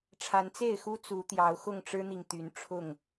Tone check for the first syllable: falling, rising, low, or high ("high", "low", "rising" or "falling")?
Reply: rising